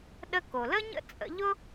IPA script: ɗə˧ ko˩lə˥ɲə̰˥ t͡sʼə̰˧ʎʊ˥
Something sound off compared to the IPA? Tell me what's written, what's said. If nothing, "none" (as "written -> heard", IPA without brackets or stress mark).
none